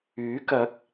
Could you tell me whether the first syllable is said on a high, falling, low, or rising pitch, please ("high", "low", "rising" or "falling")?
rising